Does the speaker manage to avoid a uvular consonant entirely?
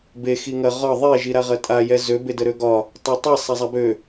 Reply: no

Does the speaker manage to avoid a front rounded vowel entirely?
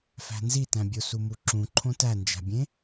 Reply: yes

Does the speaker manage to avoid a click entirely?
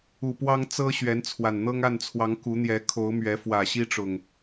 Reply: yes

